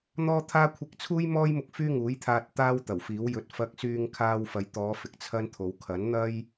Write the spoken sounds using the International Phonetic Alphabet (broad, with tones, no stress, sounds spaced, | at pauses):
n̪ ɔː˥ t̪ʰ aː˥ kʷʰ ɪ˧ k̚ t͡sʰ uː˥ j m ɔː˥ j m ʊ˧ k̚ f yː˥ ŋ uː˨˥ j t̪ʰ aː˧ t̚ t̪ aː˥ w t̪ ɐ˨˩ w f iː˨˥ w j ɵ˧ t̚ f ɐ˧ k̚ s yː˧ ŋ kʰ aː˧ w f ɐ˨ j t̪ ɔː˨˧ f ɪ˨ k̚ t͡sʰ ɐ˥ n t̪ʰ o˨˧ w kʰ ɐ˨˥ n n̪ ɐ˥ j